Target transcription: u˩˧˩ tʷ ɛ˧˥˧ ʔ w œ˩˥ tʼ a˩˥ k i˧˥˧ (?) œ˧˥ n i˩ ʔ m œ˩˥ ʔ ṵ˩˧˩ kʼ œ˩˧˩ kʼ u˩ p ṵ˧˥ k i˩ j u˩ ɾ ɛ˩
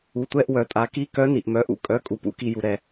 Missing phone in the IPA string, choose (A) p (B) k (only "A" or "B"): B